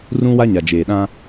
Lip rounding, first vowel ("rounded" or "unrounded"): rounded